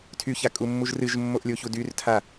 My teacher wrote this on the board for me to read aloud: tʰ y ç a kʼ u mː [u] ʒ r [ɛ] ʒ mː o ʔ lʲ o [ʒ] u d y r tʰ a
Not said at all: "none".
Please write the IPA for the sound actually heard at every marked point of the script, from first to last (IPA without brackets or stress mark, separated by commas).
u, ɨ, ç